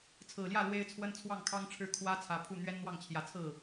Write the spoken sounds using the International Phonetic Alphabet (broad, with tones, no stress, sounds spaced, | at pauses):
t͡sʰ ɹ̩˨˩ l j ä˥˩ l w e˥ ɪ̯ t͡sʰ w ə˥ n t͡sʰ w ɑ˥˩ ŋ kʰ ɑ˥ ŋ ʈ͡ʂʰ ɻ̩˥˩ kʰ w ä˥ t͡sʰ ä˧˥ pʰ u˥˩ n̪ ɥ ɛ˥ n n̪ w ɑ˥˩ ŋ t͡ɕʰ j ä˧˥ t͡sʰ ɹ̩˥˩